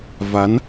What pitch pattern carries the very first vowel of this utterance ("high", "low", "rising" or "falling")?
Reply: rising